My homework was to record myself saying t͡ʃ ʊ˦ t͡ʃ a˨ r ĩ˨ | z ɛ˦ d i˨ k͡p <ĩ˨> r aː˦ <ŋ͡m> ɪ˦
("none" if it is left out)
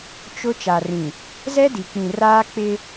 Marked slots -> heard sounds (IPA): ĩ˨, k͡p

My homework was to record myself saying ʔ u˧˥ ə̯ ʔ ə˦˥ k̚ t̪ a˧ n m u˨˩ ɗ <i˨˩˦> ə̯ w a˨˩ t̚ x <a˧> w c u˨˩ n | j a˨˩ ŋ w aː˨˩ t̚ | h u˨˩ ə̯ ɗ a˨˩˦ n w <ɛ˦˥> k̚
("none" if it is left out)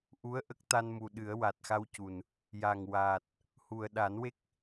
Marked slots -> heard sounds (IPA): ɨ˨˩˦, a˧, e˦˥

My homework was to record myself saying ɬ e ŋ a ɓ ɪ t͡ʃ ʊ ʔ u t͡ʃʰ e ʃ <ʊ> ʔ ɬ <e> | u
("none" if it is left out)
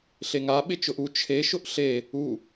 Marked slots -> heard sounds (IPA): ʊ, e

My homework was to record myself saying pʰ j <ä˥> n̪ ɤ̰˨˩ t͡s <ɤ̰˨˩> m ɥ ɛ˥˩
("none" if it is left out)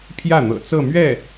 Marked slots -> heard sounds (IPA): ä˥˩, ɤ˥˧

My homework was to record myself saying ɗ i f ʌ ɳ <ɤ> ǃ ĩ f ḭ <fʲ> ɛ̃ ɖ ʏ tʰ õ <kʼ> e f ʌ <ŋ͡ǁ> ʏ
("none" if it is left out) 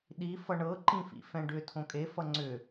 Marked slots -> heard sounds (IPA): ɤ, f, kʼ, ŋ͡ǀ

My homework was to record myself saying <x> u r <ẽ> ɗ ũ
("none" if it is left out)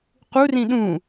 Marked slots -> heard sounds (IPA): q, ĩ

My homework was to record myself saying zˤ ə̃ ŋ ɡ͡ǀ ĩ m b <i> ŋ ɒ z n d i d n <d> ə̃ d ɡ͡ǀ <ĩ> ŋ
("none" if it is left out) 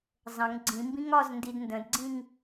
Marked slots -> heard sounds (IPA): ĩ, d, ĩ

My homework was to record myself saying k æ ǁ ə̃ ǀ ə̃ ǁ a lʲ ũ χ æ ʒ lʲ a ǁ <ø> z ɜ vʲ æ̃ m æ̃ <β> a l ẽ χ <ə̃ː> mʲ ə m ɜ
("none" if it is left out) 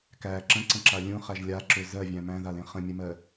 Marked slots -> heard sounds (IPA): ø, ð, ə̃

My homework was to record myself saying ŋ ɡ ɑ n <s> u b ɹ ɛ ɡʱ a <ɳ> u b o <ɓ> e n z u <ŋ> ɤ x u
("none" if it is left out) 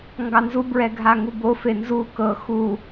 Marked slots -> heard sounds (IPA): z, ŋ, f, k

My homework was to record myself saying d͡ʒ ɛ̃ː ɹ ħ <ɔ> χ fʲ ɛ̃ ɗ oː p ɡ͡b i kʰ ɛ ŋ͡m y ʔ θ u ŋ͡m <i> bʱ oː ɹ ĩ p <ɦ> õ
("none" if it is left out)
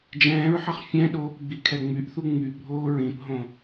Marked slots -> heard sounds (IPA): ʌ, y, ɦ

